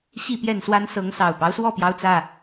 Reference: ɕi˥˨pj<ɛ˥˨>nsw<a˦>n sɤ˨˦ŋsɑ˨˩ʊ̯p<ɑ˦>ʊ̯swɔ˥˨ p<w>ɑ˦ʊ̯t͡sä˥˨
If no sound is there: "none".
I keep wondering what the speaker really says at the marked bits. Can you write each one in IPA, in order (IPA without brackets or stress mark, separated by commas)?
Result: ɛ˥˨, a˦, ɑ˦, j